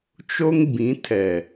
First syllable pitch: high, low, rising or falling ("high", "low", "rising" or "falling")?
high